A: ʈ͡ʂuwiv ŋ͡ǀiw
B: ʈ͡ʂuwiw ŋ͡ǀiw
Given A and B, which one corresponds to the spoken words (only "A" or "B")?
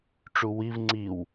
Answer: A